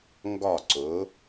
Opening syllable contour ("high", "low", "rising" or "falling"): falling